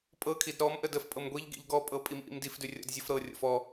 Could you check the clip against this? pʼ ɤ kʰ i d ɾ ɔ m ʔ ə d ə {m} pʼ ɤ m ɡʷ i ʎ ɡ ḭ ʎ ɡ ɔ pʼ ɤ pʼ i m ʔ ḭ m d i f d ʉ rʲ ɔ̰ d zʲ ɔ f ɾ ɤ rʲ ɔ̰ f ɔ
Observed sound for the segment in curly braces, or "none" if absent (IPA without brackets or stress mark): f